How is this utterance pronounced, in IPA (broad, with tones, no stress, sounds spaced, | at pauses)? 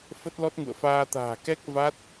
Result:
f ə˦˥ t̚ l ɔ˦˥ t̚ ŋ ṵ˧˨ ə̯ f aː˧ t̪ a̤ː˨˩ k ɛ˦˥ k̚ v a˦˥ t̚